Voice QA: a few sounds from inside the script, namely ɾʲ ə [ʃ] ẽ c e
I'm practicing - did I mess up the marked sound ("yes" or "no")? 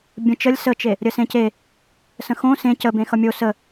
yes